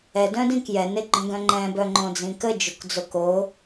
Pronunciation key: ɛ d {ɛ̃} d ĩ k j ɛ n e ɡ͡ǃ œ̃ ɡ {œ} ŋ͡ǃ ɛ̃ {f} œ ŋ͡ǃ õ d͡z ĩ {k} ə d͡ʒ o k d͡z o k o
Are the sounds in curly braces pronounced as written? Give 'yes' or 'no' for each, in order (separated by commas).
no, no, no, yes